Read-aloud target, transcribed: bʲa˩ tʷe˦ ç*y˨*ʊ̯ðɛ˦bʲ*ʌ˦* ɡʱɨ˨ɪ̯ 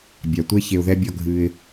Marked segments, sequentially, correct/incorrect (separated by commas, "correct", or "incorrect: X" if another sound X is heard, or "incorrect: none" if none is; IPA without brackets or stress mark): incorrect: e˨, incorrect: ɒ˦